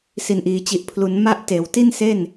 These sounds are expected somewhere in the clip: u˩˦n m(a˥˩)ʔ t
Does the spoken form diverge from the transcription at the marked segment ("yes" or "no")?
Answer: no